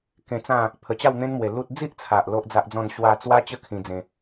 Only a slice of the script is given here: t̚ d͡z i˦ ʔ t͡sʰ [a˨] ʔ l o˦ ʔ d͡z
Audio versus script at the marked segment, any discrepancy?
no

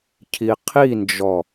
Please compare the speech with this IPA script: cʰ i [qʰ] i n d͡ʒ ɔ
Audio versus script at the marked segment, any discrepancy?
no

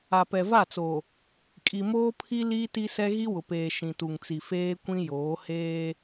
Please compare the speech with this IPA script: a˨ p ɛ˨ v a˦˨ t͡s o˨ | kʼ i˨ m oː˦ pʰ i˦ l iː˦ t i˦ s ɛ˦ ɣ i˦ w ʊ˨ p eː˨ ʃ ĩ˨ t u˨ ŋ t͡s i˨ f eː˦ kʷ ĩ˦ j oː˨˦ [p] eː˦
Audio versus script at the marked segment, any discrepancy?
yes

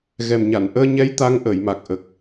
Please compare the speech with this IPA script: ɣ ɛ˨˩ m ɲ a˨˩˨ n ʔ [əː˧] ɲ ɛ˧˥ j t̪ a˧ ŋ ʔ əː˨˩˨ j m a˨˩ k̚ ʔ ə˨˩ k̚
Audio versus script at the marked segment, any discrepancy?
no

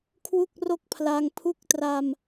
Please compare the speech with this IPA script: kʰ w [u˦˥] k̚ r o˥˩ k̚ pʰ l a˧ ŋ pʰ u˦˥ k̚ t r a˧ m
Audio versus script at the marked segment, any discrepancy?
yes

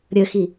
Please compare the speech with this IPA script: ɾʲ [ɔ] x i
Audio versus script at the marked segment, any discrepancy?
yes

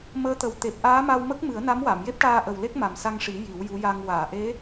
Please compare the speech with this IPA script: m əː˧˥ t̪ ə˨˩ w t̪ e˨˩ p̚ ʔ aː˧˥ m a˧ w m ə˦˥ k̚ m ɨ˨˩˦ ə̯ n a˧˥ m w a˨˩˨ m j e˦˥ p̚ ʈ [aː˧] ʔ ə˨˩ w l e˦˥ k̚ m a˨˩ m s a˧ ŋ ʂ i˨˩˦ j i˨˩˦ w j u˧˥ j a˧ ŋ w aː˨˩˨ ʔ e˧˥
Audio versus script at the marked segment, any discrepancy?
no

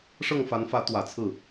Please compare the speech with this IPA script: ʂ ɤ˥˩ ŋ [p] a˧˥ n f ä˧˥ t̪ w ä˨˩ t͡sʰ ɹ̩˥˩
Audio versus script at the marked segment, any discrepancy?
yes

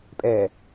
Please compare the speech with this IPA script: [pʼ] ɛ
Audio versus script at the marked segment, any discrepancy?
no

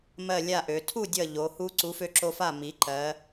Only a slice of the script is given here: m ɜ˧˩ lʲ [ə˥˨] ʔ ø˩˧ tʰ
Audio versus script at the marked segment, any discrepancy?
yes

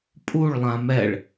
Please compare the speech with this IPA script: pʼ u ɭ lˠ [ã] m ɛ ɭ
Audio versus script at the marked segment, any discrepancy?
no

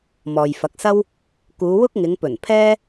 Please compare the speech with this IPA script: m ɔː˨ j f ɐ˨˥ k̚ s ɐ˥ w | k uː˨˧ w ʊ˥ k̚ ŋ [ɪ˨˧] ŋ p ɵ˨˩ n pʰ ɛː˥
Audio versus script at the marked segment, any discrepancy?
no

